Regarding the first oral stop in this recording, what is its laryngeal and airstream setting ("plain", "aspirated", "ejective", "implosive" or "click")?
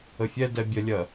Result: plain